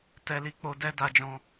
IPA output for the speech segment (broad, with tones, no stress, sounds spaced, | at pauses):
t ɛ˧ l i˧ k͡p o˧ d ɛ˧ d a˧ d͡ʒ ɔ̃˧